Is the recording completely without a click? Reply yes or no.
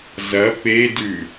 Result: yes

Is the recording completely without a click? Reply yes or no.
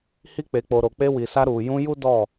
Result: yes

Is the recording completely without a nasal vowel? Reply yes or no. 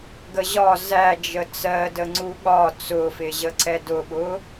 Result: yes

